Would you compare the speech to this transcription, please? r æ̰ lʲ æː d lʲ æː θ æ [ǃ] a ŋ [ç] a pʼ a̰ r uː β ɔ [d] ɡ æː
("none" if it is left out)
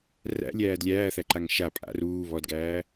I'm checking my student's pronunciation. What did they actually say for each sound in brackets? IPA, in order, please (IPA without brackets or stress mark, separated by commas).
ǃ, ʃ, d